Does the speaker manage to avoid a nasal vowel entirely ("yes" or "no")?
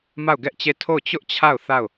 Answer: yes